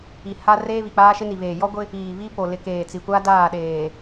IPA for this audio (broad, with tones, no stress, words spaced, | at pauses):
i˨ ha˦ reː˦βi˨k͡paː˦ʃɪ˦ ni˨βeː˨jɔ˦ɡʷɪ˦ | iː˨βi˦po˨ lɪ˨ keː˨t͡si˨kʷa˦ daː˦˨ɗeː˨